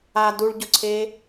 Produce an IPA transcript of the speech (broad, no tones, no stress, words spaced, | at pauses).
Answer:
a duɭɟʊǀʰeː